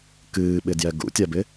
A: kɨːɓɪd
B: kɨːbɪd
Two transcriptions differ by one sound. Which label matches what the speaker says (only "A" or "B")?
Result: A